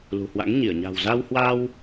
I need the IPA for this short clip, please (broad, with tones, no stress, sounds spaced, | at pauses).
l ṳ˨˩ h w a̰˧˥ ŋ ɲ i˧˩ ə̯ ɲ a̤˨˩ w z a˧ w h w a˧ w